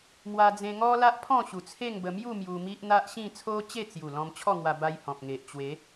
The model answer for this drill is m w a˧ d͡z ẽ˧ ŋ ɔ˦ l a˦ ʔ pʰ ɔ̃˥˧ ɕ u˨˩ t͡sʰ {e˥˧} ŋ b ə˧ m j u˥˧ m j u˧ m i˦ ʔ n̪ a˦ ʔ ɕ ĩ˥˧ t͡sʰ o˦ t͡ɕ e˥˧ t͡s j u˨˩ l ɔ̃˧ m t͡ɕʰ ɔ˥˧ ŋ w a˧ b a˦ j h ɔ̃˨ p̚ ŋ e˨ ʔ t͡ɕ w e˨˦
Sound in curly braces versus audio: correct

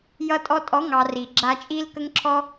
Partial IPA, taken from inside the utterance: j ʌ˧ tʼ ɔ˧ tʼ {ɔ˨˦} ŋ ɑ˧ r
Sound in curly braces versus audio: correct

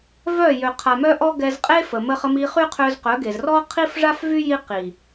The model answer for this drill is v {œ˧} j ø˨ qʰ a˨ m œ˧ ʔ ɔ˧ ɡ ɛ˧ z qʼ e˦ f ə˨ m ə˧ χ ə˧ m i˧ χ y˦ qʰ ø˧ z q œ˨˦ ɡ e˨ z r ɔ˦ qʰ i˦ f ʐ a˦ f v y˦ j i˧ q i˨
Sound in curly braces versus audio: incorrect: œ˦˨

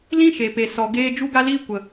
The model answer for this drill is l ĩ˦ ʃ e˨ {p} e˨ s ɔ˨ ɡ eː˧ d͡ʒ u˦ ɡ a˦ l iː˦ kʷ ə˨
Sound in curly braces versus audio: correct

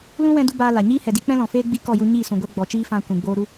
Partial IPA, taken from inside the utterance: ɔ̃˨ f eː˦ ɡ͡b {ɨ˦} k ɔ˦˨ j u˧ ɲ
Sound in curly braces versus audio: incorrect: i˦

